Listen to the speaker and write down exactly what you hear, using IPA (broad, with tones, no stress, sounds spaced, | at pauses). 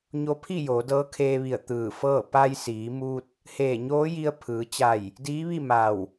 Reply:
ɲ o˧˥ pʰ i˥˨ j oː˩˧ d ɤː˧˥ kʰ eː˧ ʋ i˧˩ ə̯ t̪ ɯː˧˩ f ɤː˥˨ p a˧ j s iː˩˧ m u˧ t̚ | h eː˧˩ ɲ oː˧˥ j i˧ ə̯ pʰ ɯː˩˧ t͡ɕ a˧˩ j | d iː˧˥ ʋ i˥˨ m a˧˩ w